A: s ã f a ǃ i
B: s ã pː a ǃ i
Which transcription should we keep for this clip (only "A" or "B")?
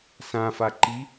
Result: A